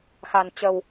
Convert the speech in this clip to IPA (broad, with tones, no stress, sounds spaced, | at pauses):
x a˧ n t͡ɕ ə˧ w